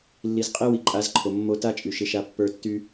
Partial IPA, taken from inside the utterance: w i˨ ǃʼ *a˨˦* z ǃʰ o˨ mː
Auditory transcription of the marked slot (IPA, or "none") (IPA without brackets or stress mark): a˨˦